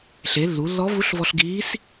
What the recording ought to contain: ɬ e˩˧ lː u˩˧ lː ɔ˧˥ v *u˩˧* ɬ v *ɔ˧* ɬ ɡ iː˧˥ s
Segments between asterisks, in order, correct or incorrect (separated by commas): incorrect, correct